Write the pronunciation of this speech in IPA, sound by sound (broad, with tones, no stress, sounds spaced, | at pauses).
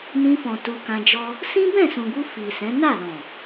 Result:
n ĩ˧ f ɔ̃˨ t u˧ k ã˧ d͡ʒ ɔ˦ | s ĩ˦ b ɛ̃˦˨ s ũ˨ ɡ u˧ f i˨ s ɛ̃˨˦ n a˦˨ l ɔ̃˨